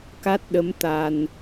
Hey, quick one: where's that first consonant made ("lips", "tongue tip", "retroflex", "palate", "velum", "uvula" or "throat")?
velum